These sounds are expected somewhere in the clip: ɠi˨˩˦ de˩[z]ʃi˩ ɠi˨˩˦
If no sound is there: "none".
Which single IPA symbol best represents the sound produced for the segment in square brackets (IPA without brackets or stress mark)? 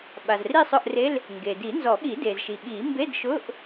z